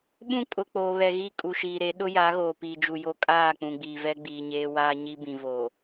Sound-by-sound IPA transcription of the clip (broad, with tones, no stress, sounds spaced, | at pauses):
ɓ ũ˦ kʼ ʊ˨ k͡p oː˨ β ɛ˨ ɣ i˦˨ kʼ u˨ ʃ iː˨ ɾ e˨˦ ɗ ʊ˦ j a˨˦ ɣ oː˨ p iː˨ d͡ʒ u˨ j o˦ kʼ aː˦˨ k͡p ũ˨ ɡ͡b iː˨ v ɛ˦ ɡ͡b iː˨ ɲ eː˦ w aː˦ ɲ i˦ b ĩ˨ v oː˨